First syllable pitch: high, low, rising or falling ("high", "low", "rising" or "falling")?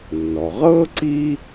low